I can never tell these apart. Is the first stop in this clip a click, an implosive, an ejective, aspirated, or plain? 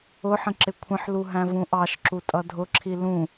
click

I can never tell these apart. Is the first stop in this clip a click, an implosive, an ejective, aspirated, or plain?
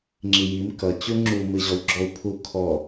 click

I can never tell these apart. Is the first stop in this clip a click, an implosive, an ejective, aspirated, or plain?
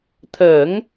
aspirated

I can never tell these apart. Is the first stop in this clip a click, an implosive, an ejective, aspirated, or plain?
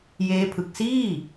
aspirated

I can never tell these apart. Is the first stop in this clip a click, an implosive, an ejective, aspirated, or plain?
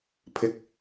aspirated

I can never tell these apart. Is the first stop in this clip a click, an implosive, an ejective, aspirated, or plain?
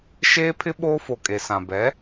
aspirated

